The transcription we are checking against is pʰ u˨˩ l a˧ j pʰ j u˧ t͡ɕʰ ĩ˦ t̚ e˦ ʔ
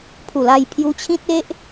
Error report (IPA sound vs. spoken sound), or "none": none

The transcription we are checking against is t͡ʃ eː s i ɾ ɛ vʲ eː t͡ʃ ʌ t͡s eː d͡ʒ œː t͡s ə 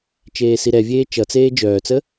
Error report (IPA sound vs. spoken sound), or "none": none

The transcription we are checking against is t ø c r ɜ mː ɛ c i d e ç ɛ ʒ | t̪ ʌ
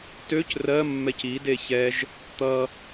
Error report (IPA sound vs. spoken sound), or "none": none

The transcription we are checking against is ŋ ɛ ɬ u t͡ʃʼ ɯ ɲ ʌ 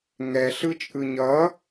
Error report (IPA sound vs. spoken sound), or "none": u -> ɯ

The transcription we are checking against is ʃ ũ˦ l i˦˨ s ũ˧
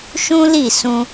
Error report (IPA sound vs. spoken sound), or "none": none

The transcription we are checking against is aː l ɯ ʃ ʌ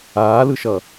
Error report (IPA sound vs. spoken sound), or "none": none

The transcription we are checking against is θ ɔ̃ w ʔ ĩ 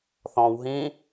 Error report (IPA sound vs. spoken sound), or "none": ʔ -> ɦ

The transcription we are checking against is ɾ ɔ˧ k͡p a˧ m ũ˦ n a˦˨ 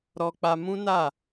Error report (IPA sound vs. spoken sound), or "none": none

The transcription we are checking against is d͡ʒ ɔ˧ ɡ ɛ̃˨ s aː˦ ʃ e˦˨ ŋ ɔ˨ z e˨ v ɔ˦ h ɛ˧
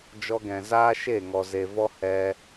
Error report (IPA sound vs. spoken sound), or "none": s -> z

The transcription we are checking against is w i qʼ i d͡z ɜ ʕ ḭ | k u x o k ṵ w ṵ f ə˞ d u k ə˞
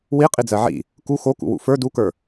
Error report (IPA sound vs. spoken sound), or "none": none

